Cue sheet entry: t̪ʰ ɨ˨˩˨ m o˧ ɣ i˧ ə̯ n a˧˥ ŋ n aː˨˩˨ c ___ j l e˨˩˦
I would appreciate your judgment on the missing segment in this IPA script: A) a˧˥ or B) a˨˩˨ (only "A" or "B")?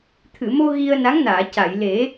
B